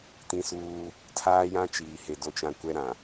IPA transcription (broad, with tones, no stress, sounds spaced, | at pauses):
t ĩ˦ s uː˦ | tʰ aː˦ j ã˦ t͡ʃ iː˨ h e˨ d o˦ t͡ʃ ã˦ kʷ ɛ˦ ɾ ã˨